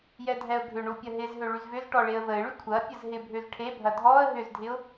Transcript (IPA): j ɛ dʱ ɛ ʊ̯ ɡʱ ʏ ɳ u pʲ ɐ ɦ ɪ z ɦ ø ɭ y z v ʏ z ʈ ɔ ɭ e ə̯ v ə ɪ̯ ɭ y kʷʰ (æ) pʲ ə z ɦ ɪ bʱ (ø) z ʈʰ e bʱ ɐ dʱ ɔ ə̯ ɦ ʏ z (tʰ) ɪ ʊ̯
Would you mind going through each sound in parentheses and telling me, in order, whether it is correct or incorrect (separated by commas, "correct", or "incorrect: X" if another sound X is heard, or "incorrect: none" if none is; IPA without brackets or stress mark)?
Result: incorrect: ɐ, correct, incorrect: dʱ